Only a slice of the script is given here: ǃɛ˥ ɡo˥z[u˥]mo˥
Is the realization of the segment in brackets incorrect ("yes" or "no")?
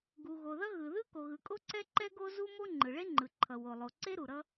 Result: no